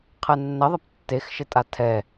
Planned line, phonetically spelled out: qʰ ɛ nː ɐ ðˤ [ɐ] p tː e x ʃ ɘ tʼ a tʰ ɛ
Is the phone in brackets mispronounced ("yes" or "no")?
no